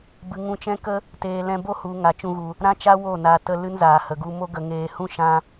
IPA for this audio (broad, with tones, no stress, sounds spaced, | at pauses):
b ɨ˨ ŋ ũ˧ t͡ʃ ɛ̃˦ k ə˦ | t eː˨ l ɛ̃˧ b o˦ h u˨ ŋ a˨ t͡ʃ ũ˧ ɣ u˨ | ɾ ã˦ t͡ʃ a˦ w o˦˨ n a˨ t ə˧ l ɨ˦ n z aː˨ h ə˨ ɡ u˧ m o˦ ɡ ə˧ ŋ eː˧ h ũ˦ ʃ ã˧